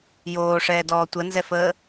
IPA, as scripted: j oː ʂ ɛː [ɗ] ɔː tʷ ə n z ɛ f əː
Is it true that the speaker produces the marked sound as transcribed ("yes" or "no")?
no